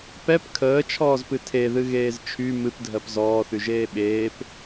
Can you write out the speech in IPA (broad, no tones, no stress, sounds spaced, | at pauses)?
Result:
p ɛ p kʰ əː t͡ʃʰ ɔː z p ɨ tʰ e ð ɨ ɣ eː z t͡ʃʰ y m ɨ p dʱ ɜ p z ɔː θ y ʒ eː ɓ eː p